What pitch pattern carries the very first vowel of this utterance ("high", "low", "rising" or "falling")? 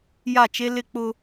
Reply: falling